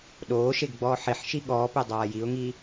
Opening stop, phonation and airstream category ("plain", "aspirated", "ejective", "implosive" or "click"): implosive